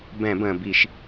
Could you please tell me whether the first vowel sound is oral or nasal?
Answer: nasal